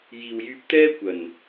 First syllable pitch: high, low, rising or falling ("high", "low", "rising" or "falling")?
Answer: low